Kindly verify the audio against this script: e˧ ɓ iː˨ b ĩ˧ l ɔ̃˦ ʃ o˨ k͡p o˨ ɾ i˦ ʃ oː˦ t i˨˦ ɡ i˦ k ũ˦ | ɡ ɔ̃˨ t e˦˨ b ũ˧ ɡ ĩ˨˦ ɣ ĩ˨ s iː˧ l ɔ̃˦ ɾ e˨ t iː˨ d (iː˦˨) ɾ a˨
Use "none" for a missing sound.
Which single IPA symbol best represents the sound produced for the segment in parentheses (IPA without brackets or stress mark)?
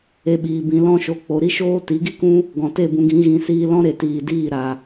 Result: iː˦˨